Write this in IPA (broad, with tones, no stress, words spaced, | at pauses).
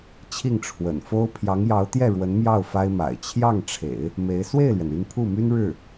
t͡ɕʰi˥˩ŋʈ͡ʂʰwə̰˨˩n fo˥ʊ̯ pʰjɑ˧˥ŋjɑ˧˥ʊ̯ t̪jɛ˥˩ ɻwə˧˥nmjɑ˥˩ʊ̯ fa˥ɪ̯ma̰˨˩ɪ̯ t͡ɕʰjɑ˥˩ŋʈ͡ʂʰḛ˨˩˦ɪ̯ | me˧˥ɪ̯ swe˥˩ɪ̯lɥɛ˩n y˥˧npʰu˥˩my˥n ɻɻ̩˥˩